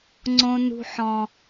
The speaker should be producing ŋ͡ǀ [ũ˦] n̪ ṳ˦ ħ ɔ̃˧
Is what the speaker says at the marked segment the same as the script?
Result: no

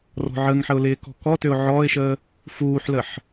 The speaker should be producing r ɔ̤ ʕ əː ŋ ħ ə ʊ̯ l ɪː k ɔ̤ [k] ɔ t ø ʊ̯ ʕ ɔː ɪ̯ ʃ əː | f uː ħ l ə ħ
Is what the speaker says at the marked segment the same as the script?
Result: yes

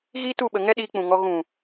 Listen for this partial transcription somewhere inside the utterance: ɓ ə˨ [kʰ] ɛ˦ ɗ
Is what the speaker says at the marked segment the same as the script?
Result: no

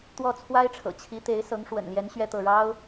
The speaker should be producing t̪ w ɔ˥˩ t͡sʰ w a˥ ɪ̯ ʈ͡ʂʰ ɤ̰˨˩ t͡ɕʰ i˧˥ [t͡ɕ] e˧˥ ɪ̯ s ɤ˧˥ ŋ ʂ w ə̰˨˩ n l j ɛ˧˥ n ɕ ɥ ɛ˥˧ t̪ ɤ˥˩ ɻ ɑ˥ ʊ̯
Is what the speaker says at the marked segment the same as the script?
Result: no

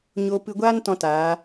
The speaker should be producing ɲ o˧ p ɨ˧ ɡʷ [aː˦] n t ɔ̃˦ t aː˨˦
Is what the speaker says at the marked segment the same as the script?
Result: yes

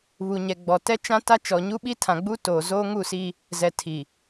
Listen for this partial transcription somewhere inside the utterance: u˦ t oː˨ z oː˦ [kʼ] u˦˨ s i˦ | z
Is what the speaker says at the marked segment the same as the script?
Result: no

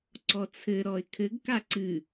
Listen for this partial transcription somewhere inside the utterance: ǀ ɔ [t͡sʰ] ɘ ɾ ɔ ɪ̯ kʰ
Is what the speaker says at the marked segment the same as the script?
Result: yes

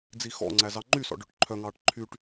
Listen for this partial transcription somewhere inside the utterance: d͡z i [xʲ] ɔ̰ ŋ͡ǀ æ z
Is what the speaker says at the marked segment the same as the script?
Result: no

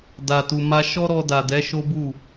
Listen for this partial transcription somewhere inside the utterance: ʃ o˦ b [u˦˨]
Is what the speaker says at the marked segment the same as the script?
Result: yes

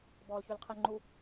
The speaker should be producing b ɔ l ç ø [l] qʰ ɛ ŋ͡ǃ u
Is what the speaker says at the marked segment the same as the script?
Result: yes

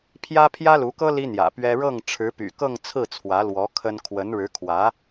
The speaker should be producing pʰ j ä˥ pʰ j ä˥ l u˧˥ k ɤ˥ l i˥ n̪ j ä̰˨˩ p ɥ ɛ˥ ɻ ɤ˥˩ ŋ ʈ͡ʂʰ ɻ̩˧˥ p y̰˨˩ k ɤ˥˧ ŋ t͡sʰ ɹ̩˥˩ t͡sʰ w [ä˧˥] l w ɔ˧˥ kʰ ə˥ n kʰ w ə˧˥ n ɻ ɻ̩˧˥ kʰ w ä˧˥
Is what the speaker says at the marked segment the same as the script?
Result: yes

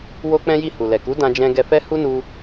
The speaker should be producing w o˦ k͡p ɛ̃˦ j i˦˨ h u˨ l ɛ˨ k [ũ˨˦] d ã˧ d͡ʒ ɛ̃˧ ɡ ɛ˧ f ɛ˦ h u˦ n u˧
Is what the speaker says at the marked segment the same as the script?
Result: no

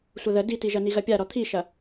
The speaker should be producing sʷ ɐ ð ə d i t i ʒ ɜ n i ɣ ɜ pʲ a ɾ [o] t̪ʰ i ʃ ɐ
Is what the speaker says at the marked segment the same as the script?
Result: no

